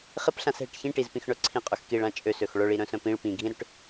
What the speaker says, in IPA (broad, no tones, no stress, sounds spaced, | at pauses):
χ ɪ p ɬ ã s ɦ ɪ ʈ ç ĩ ʈ i z p ĩ x ɳ œ ǀʰ ĩ qʼ ʏ x k i ɭ ã t͡ʃʼ ø s ø x ɭ œ ɭ i ɾ œ̃ s œ̃ p ĩ ɭ p ĩ ɡʱ ĩ ɾ ʏ ʈ